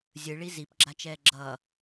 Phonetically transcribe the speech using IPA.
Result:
zʲ ɯ ɭ i z i p ɡ͡ǁ a t͡ʃ ɛː ɡ͡ǁ ʌː

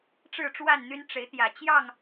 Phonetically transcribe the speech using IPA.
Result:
ʈ͡ʂ ɻ̩˥˨ ʈ͡ʂ w a˥˨ n n̪ y˦ n ʈ͡ʂ e˨˦ ɪ̯ t̪ j ä˨˩ t͡ɕ j ɑ˥˨ ŋ

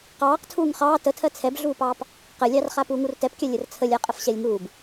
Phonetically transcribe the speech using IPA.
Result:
q ɑː q tʰ uː ŋ χ ɑː t ə tʰ ɜ t͡sʰ ɛ b ɮ uː p ɑː p | q ə lʲ ɑ r χ a p uː ŋ u r t ɛ p kʲ a lʲ ə r t͡sʰ ə lʲ a qʼ ə f ɕ ɛ lʲ ŋ uː b

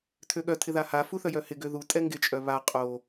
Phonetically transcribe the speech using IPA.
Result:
tʰ ø ɠ œ tʰ ɪ ð a h a f u θ œ j œ h ɪ ɡ ø ð u tʼ ɛ ŋ ɡ ɪ t͡ʃʼ œ β a qʼ o

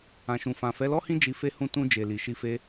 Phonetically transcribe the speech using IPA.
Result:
ã˨ ʃ ũ˨ f ã˨ f ɛ˨˦ l ɔ˦ h ĩ˦ d͡ʒ i˧ f e˦ h ũ˦˨ t ũ˧ d͡ʒ e˨ l i˨ ʃ i˧ f e˧

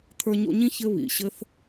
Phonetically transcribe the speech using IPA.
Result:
t̪ʰ ə˞˧ ɲ o̰˧ ɲ ĩ˦ ç ɘ˦ β ḭ˨ ɕ ɘ˦ θ

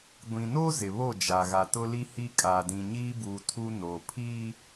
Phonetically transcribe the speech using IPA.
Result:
ɡʷ ĩ˨ n o˦ z ɪ˨ β o˦˨ d͡ʒ a˨ ɣ a˨ t ʊ˦ l i˦ h i˦ kʼ a˨ d ĩ˨ ɲ iː˦ b uː˨ tʰ u˦ n o˨ pʰ iː˦

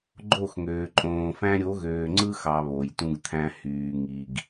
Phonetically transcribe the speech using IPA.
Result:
ɡ͡ǃ o˦˨ x ŋ øː˨ ǃʼ õː˨ f æ̃˦ ɾʲ o˨˦ ɣ øː˨ ŋ͡ǀ ɯ˦ x ɑ˨ β o˨ j t ũ˦ ɡ t̪ʰ æ̃˦ h yː˨ ŋ i˨ ɡ

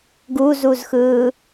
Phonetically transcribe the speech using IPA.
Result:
ɡ u z u z x ɯː

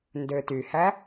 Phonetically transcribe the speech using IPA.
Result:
n d ø t y h æ

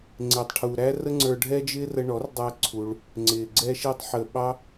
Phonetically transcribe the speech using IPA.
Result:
ŋ͡ǀ ɪː˨ tˤ ʈʰ u˨ ɾ æ˦ r ə˦ ŋ͡ǀ ə˞˧ ɖʱ ɛ˦ d͡ʒ ɪː˦ r ə˧ ɳ ɔ˨˦ r dˤ æ˦ ǀʰ u˧ ɭ | ŋ͡ǀ ɪː˨ ɡ͡ǀ ɛ˧ ʃ i˧ tˤ ħ əː˨ ɓ ɑ˦

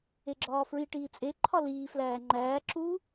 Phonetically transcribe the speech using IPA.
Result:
e ɡ͡ǁ ɒː f ɹ i ʈ iː t͡sʼ e ǃʰ ɒ l iː f l æː ŋ͡ǃ æː ǁ u

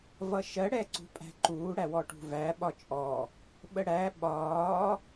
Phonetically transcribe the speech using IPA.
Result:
v ʌ ʃ ɜ ɽ ɛ ǀ ṳ pʼ æ̤ ǃ uː ɽ æ w ɔ ʈ ṳ v æ ɓ ɒ t͡ʃʼ ɔ | ɓ ə ɽ æ ɓ ɒː

